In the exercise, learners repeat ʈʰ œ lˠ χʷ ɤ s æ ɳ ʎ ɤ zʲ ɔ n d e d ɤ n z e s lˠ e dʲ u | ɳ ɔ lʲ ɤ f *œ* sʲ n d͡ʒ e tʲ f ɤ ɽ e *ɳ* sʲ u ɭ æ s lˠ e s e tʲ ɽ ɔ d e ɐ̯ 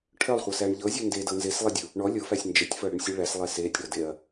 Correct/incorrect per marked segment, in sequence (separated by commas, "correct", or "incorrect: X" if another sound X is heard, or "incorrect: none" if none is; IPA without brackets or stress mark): incorrect: æ, correct